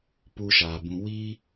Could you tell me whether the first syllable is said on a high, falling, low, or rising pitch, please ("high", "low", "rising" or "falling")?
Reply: high